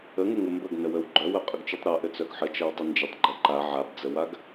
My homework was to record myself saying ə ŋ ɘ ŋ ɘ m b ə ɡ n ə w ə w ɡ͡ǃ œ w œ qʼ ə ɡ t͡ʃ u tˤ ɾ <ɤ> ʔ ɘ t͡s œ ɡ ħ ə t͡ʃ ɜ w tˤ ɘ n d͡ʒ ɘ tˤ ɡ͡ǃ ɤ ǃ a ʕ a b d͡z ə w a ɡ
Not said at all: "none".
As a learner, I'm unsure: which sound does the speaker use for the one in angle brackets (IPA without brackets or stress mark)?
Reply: ɤ